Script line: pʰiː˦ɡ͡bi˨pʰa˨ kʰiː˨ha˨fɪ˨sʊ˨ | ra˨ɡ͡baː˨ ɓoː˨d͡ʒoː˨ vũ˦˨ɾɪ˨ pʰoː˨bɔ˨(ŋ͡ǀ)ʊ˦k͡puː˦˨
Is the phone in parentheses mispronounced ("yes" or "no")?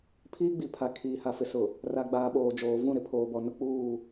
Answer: yes